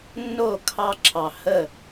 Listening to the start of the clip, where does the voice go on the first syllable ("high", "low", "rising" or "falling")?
falling